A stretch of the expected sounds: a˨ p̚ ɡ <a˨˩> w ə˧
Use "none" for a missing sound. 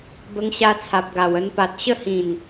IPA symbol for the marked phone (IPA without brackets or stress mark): a˨˩